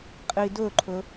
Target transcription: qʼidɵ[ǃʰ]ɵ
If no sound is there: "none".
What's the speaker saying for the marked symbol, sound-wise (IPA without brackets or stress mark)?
ǃʰ